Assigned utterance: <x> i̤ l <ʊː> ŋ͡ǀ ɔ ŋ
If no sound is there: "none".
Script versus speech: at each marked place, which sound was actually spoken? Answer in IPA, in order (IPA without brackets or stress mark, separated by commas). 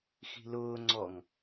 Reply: x, ʊː